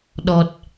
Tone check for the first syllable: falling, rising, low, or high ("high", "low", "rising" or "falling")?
low